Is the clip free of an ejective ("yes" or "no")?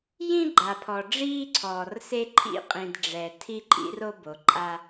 no